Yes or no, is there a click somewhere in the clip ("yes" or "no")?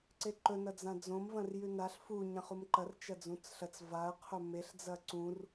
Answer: yes